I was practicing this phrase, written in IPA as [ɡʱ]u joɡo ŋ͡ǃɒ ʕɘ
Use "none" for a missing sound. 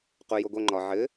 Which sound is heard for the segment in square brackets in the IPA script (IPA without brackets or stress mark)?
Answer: q